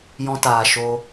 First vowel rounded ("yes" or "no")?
yes